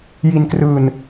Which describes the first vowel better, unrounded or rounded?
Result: unrounded